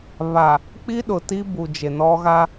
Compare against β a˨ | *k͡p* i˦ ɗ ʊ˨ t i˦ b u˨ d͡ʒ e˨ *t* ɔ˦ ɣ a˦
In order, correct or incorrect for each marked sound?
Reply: correct, incorrect: n

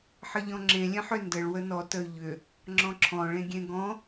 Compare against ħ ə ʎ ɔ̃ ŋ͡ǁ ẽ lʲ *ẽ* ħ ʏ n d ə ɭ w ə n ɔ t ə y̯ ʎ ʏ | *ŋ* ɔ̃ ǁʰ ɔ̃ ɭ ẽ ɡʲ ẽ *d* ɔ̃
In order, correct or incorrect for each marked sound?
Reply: correct, incorrect: ŋ͡ǁ, incorrect: ɡ

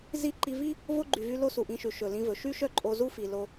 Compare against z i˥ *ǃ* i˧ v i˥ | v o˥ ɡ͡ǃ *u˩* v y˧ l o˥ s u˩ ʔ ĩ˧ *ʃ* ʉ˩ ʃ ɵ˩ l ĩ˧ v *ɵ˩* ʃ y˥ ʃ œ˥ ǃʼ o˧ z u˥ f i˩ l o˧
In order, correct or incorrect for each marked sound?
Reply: correct, incorrect: y˩, correct, correct

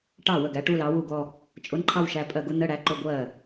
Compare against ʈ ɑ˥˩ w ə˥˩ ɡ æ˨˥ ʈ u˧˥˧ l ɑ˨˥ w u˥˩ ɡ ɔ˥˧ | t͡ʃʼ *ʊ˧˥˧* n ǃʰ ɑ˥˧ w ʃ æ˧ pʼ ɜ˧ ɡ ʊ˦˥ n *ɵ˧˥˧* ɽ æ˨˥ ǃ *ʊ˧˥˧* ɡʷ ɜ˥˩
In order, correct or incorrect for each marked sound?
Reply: correct, incorrect: ə˧˥˧, correct

